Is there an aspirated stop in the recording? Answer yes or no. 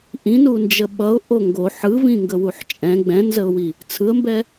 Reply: yes